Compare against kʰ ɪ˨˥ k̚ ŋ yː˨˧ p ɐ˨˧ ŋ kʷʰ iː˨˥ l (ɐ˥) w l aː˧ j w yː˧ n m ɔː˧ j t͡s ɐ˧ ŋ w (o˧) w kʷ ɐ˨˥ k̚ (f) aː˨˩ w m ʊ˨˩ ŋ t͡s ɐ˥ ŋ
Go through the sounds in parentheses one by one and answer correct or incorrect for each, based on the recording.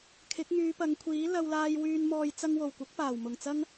incorrect, incorrect, incorrect

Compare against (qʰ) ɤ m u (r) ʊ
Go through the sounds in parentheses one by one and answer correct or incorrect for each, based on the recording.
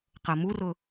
incorrect, correct

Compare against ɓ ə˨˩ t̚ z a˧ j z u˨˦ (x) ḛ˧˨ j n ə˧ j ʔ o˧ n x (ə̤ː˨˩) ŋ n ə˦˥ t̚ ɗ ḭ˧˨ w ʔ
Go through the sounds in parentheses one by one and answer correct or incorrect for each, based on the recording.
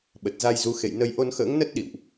correct, incorrect

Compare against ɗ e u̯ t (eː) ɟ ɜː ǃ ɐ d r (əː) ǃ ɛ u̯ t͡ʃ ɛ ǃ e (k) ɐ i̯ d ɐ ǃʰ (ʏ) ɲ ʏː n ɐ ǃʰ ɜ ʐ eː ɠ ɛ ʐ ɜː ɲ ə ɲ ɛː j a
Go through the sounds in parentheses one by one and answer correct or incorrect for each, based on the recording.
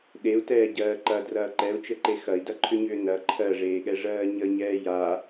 incorrect, incorrect, incorrect, correct

